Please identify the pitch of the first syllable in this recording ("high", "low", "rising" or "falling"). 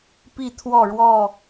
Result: falling